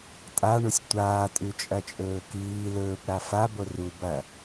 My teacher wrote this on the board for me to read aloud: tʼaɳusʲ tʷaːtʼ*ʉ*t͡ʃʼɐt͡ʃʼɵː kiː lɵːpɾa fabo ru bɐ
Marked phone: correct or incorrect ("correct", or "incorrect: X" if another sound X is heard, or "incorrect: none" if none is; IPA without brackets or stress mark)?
correct